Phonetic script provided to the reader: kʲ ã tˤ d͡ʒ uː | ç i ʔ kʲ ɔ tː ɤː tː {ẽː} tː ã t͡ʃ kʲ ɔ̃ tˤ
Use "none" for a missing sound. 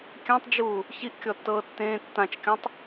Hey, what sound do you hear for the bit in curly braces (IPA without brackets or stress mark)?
ẽː